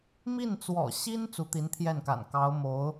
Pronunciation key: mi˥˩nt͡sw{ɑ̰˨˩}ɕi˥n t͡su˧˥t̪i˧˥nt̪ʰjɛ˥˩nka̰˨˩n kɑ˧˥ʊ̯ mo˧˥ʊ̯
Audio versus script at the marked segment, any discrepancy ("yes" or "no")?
yes